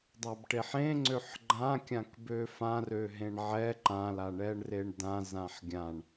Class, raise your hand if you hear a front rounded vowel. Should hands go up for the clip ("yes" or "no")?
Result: yes